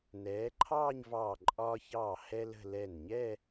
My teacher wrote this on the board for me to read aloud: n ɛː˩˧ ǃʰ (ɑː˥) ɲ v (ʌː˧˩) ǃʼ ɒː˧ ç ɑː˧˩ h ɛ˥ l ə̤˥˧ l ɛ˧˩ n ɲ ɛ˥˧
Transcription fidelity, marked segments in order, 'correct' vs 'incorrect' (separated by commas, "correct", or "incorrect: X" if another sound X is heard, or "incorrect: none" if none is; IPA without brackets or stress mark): incorrect: ɑː˥˧, incorrect: ɑː˧˩